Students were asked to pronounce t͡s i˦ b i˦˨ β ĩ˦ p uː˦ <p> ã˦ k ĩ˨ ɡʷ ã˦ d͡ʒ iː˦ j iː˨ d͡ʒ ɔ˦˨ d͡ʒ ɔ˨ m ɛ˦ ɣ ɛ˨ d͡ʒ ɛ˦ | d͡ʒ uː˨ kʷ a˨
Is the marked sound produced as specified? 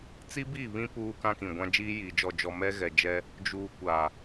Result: no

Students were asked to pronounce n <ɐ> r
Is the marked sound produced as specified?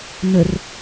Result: no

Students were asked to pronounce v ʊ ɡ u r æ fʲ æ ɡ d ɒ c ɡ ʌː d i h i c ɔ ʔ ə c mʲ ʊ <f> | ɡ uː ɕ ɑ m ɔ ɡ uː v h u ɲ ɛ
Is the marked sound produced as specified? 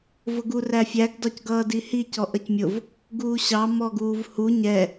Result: no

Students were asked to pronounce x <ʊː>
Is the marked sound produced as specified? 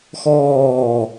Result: no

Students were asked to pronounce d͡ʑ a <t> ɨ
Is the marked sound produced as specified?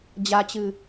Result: no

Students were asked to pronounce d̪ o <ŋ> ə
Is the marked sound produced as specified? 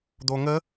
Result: yes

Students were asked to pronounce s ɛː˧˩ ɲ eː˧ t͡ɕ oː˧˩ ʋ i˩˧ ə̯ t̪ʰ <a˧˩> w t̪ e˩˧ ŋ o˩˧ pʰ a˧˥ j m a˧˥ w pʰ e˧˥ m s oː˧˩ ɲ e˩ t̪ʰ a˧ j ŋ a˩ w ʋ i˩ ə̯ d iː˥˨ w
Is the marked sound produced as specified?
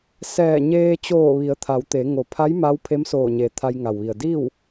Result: no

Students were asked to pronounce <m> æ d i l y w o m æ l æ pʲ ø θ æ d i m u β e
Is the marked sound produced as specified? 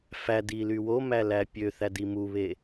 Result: no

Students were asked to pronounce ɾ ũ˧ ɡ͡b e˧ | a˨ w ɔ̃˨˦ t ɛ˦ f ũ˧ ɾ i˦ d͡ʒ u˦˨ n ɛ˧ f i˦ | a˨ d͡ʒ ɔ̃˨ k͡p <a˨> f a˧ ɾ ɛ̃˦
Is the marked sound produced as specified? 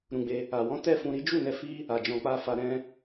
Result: no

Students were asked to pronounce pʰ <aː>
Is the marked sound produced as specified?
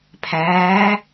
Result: no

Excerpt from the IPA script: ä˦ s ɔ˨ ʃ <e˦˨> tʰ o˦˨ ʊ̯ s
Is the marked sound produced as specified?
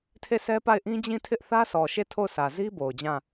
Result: yes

